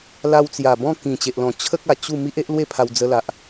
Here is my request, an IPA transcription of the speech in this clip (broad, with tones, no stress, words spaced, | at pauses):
la˧w t͡sja˨˩ bɔ̃˥˧ kĩ˨˩t͡ɕe˨ʔlɔ̃˨˩ t͡ɕʰə˦k̚a˨˩ t͡ɕu˥˧ mi˦ʔe˦ʔ lwe˥˧pʰa˧w d͡zə˧la˨ʔ